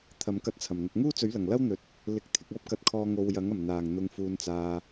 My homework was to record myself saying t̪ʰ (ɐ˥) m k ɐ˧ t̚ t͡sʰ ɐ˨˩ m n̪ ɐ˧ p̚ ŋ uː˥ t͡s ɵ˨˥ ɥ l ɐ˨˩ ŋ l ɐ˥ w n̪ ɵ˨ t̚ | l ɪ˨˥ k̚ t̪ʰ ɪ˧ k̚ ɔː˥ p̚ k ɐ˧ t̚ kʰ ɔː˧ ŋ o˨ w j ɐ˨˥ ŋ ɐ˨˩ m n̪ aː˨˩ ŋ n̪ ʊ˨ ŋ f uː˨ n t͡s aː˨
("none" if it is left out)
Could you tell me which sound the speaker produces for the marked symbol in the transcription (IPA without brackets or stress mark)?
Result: ɐ˨˧